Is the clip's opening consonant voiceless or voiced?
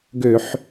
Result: voiced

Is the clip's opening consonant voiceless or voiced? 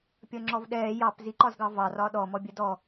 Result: voiceless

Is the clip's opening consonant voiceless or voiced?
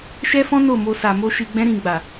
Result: voiceless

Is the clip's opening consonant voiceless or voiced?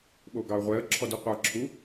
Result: voiced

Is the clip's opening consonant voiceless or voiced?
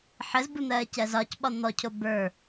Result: voiceless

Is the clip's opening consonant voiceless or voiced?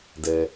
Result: voiced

